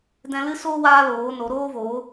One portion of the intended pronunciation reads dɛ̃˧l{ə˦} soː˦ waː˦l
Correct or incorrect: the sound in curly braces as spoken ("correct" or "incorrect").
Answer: incorrect